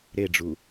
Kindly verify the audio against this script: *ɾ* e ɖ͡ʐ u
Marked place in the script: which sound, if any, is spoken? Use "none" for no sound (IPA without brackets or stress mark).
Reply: ɾ